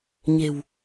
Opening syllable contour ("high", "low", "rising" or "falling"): low